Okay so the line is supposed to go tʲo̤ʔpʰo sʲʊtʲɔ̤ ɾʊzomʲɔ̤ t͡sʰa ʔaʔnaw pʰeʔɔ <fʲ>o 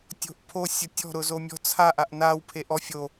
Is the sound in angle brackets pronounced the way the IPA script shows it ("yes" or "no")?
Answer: yes